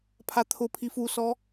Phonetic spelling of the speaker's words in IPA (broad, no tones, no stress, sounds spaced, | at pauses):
pʰ a t̪ʰ ʊ pʰ i f u s ɔ